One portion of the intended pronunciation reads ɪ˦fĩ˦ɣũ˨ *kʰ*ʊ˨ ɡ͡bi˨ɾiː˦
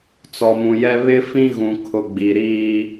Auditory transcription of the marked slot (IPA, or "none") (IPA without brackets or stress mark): kʰ